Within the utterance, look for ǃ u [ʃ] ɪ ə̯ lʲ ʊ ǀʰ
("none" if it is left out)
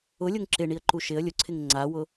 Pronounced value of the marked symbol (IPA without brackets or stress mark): ʃ